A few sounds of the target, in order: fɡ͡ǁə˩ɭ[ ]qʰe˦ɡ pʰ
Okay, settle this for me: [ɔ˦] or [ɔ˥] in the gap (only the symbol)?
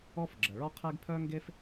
ɔ˦